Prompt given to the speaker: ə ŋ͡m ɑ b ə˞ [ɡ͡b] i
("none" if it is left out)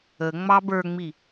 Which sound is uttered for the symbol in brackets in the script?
ŋ͡m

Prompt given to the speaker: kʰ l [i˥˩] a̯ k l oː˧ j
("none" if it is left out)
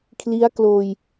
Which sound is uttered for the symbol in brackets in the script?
i˦˥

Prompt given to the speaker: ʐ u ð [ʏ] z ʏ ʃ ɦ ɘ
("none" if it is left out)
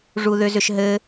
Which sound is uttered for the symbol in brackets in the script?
ʏ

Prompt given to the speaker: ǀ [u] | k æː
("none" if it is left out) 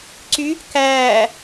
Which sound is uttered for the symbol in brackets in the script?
y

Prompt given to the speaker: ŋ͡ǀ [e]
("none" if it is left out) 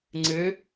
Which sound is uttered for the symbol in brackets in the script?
ɨ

